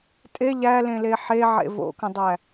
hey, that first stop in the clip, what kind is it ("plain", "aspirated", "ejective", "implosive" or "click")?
ejective